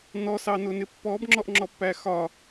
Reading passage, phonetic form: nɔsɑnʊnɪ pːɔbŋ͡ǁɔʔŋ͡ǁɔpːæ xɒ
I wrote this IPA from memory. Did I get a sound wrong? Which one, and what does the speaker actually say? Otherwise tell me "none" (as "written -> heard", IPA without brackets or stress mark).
none